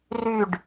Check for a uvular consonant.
absent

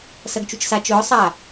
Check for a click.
absent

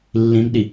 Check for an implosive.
present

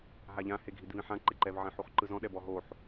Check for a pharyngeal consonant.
present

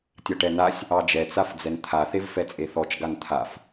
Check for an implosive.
absent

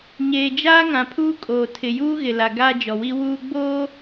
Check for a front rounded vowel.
absent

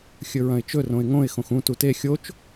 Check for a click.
absent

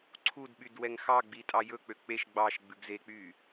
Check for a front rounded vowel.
present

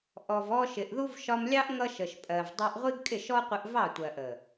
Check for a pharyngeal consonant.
absent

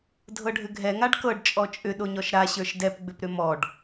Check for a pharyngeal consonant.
absent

